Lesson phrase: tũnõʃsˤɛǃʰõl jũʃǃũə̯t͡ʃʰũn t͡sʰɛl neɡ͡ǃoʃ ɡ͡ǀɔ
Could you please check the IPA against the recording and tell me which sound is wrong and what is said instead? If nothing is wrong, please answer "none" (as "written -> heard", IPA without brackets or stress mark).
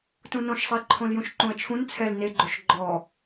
ɡ͡ǀ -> ɡ͡ǃ